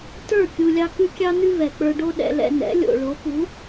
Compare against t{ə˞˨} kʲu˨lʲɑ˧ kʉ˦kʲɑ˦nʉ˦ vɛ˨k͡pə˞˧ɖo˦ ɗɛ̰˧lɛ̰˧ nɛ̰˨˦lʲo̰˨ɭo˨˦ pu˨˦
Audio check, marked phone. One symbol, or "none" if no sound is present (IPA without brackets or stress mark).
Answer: ə˞˦˨